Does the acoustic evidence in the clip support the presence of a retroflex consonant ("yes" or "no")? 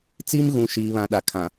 no